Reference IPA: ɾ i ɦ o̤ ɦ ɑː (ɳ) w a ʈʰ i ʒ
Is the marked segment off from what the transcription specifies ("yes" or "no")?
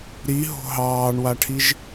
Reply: no